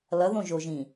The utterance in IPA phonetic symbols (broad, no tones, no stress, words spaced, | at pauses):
lʌðõʒoʒĩ